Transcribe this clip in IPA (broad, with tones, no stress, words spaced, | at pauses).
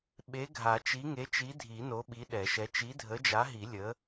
ɓe˨˥ɡʱa˨˩˦t͡ʃi˨˥ ŋe˨˥t͡ʃi˨˥dʱi˨˩˦ no˨˥ɓi˨˥ɗɛ˨˩˦ʃɛ˨˥ t͡ʃi˨˥dʱə˨˥d͡ʒa˨˥ɦi˨˩˦ lʲə˨˥